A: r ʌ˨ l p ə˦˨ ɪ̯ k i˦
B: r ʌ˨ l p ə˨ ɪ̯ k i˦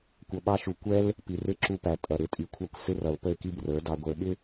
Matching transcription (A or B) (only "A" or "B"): A